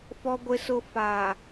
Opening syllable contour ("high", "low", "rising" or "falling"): low